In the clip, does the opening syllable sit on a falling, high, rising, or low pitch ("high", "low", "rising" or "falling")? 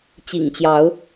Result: low